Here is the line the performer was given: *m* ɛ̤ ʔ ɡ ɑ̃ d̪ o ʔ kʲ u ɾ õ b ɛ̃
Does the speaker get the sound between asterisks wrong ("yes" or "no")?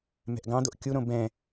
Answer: no